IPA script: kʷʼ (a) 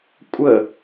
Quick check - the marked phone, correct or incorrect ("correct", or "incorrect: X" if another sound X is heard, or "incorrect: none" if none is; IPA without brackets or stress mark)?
incorrect: ə